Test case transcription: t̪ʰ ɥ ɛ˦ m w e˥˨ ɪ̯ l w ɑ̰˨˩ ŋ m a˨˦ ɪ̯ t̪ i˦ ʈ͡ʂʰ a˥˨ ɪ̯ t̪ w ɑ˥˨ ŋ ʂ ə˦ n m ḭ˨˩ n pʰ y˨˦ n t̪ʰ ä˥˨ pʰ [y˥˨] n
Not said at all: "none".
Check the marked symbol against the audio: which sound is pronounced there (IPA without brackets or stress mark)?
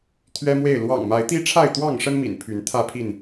i˥˨